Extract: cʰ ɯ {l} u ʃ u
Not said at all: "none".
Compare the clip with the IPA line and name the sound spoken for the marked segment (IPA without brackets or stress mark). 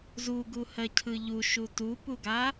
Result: ʎ